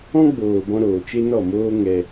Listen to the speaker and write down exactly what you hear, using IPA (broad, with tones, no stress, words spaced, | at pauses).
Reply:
ɔ̃˦ɡ͡boː˨bɔ̃˧ ɾoː˨t͡ʃe˦nɔ˦˨moː˦ ŋɛ˧